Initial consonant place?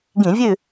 velar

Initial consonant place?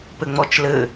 labial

